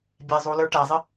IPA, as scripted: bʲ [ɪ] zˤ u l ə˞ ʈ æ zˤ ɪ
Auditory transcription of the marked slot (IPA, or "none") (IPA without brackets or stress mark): ɛ